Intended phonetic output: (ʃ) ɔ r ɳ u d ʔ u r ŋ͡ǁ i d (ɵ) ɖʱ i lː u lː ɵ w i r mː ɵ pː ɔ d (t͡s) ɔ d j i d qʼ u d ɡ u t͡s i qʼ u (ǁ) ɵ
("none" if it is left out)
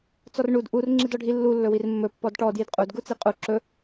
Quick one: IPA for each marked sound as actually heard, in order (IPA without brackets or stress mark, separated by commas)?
t͡s, ɔ, ʈ, ǁ